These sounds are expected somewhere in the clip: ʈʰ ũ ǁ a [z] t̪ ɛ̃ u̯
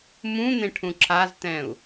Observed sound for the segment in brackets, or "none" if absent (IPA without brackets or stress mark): z